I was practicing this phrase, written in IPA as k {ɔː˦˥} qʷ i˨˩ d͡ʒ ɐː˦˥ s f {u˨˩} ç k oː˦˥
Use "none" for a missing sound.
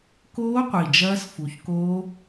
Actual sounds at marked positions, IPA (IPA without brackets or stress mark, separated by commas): oː˦˥, u˨˩